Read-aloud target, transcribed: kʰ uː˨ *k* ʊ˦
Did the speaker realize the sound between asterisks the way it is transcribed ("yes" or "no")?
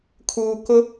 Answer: yes